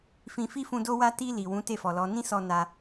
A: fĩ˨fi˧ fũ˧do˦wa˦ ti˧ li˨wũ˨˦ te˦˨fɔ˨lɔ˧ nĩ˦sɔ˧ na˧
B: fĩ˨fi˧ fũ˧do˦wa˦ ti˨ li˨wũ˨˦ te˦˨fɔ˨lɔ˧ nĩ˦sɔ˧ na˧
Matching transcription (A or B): A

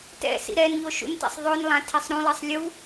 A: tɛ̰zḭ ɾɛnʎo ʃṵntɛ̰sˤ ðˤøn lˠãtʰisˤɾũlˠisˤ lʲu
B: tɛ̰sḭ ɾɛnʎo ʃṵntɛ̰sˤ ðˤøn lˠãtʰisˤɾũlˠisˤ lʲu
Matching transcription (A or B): B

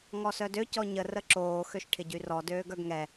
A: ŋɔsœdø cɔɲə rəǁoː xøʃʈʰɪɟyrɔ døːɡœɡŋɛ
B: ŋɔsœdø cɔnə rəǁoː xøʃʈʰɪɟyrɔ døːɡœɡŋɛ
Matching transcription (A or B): A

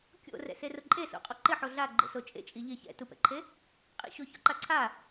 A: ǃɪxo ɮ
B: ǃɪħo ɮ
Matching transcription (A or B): B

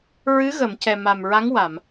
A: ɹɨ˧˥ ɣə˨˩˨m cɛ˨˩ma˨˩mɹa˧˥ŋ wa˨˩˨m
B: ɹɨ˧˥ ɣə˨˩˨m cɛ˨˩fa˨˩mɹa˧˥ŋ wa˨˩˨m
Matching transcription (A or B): A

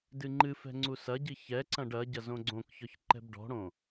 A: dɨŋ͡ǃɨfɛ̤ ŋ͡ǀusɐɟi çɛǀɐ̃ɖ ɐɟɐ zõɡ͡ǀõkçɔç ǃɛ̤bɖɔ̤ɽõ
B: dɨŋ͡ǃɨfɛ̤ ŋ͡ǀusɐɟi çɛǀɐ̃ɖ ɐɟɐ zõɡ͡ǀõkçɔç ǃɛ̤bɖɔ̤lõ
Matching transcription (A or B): A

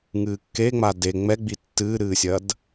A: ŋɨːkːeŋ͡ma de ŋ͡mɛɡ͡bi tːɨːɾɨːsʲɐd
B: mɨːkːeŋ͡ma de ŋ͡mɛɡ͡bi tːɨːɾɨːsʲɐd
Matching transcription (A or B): A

